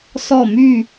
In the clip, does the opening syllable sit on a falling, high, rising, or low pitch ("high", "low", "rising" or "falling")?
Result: falling